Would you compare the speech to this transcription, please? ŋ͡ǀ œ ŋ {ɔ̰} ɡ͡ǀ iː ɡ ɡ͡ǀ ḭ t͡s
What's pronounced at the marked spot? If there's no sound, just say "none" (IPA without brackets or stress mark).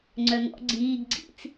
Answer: ɔ̰